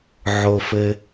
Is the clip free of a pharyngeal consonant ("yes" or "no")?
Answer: no